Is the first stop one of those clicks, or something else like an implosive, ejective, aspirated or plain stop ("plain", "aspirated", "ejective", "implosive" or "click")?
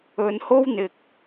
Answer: plain